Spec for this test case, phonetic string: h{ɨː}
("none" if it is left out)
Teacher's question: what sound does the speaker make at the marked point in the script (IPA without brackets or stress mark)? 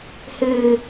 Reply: ɨː